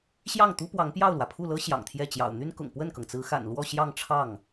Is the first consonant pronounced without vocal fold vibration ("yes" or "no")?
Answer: yes